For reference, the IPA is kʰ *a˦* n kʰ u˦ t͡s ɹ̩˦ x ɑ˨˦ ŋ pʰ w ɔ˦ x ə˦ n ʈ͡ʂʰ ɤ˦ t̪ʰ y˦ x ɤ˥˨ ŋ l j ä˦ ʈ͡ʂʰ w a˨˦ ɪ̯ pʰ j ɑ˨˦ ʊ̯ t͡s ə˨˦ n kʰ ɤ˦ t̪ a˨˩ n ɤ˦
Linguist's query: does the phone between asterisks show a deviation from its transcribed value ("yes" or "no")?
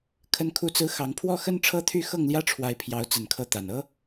yes